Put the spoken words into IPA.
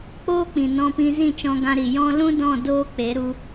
k͡p oː˦ k͡p ĩ˨ n ɔ̃˧ p ĩ˧ z ĩ˦˨ t͡ʃ ɔ̃˧ ɡ ã˧ ɾ i˨ j ɔ̃˦ l ũ˦ d ɔ̃˦˨ d oː˦ k͡p e˨˦ ɾ u˧

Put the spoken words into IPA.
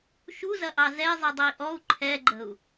ʃ u z ɐ ʔ ɑ z ɛ zˤ i dˤ ɐ i̯ ʔ ɔ u̯ ǃʰ ɛ ɡ͡ǃ ə̤ u̯

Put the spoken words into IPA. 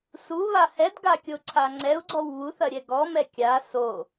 s u β a h ɛ d ɡ a kʲ o ǀʰ a ŋ͡ǀ ɛ u̯ ɡ͡ǀ ɔ w β u θ ɐ ɾʲ ɛ ɡ ɔ m ɛ kʲ a s o

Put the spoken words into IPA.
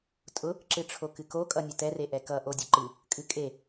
tʼ ʊ | ǁ ɨ ʈ͡ʂʰ o k ɨ k o kʼ ʌ nʲ ʊ t ɛ r e ʔ ɛ k ʌ ʔ o dʲ ʊ ǃ ɨ | kʼ ɨ kʼ e

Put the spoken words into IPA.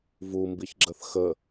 v u m b i ç ɡ͡ǁ ə θ x ə

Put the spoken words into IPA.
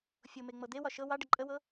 fʲ o m e ŋ͡m ɤ d̪ e w ɒ ʃ ɤ w ɑ ɖ ə ǃʼ ə w ɤ

